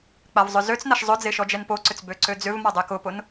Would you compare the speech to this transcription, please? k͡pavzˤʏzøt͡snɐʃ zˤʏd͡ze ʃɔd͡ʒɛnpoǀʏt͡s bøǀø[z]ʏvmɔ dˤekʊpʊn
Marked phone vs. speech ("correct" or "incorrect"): incorrect